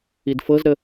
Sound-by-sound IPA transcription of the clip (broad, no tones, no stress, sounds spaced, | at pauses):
i d f ɤ z ɾ ə